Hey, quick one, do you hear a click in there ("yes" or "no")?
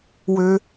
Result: no